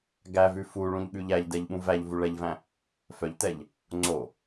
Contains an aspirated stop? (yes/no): no